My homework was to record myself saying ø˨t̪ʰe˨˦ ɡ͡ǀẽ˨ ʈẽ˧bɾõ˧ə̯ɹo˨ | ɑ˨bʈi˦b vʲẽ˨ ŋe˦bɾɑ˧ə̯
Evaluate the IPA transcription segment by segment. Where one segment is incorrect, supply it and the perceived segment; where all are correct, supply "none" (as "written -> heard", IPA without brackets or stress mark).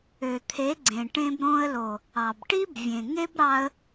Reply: ɹ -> l